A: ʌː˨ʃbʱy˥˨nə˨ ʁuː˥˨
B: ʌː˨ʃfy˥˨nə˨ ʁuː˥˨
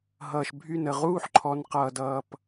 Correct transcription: A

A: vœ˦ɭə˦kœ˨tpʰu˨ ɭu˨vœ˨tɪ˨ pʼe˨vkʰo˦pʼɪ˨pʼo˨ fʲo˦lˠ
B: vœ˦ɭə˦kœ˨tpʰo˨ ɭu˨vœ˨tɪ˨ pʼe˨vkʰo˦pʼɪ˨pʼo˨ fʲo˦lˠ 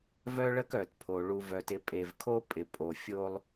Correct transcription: B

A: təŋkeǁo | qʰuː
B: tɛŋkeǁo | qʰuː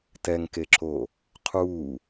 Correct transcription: B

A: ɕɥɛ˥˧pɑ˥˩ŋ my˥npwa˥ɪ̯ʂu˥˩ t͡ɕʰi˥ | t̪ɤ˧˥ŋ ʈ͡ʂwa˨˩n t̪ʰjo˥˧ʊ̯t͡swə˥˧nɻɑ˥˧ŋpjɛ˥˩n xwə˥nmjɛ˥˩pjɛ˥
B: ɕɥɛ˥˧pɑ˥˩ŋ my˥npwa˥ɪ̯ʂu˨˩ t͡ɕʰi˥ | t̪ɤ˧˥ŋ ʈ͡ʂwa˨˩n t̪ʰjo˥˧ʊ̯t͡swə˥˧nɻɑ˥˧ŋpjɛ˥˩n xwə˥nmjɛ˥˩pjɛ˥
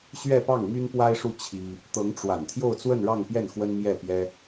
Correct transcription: A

